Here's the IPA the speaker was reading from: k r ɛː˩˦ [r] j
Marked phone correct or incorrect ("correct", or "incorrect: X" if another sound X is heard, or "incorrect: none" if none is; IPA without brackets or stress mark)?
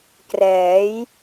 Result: incorrect: none